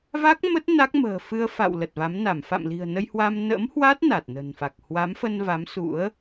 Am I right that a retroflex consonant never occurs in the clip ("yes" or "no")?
yes